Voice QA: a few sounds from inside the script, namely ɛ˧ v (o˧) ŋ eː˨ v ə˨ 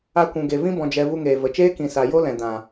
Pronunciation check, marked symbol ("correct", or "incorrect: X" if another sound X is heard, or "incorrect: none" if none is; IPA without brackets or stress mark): incorrect: u˧